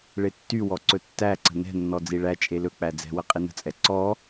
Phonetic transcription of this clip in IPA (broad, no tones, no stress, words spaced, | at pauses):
ɭetːywɔ ǀɵtːæǀə̤ nɛ̤nːɔ d͡ziɭæt͡ʃʼe lɵk͡pæ d͡zɛ̤wə qʼinə̤t͡sʼɛ ǀɔ